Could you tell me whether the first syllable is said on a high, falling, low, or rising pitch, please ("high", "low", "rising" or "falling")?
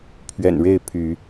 low